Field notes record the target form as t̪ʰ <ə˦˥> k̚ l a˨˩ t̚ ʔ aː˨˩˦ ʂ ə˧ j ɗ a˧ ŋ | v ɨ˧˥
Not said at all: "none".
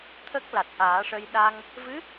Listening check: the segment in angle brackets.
ə˦˥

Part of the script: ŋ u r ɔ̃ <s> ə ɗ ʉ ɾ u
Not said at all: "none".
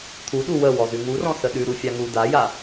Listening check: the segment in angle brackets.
s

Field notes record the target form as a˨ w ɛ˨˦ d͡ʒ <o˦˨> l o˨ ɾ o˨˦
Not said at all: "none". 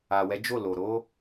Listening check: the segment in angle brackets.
o˦˨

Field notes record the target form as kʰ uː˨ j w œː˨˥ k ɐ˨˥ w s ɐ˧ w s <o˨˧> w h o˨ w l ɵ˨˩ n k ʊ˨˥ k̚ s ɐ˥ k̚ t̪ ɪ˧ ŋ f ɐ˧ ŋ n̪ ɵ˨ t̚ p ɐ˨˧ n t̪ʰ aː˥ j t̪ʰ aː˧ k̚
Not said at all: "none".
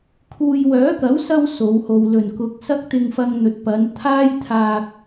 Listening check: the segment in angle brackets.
o˨˧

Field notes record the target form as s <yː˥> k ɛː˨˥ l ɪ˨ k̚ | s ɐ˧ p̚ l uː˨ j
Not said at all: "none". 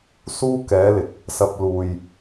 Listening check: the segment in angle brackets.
uː˥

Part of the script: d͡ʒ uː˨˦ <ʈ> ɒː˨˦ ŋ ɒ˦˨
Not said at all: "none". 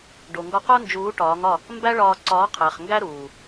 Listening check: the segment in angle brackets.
ʈ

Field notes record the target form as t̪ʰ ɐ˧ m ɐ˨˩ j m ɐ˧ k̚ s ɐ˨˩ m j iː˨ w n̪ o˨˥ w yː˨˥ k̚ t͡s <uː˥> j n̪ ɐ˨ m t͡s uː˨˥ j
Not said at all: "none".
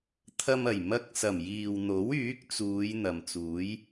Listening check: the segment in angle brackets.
uː˨˧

